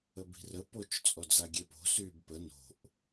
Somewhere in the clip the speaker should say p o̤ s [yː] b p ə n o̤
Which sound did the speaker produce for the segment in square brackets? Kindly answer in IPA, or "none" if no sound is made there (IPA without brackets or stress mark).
yː